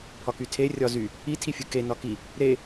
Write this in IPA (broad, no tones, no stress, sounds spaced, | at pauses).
pʰ ɒ k y tʰ e rʲ ɒ z y | i tʰ i fʲ ɯ k e n ɒ k i | ɾ e